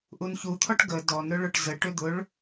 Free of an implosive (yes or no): yes